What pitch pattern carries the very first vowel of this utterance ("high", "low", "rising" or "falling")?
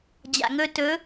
low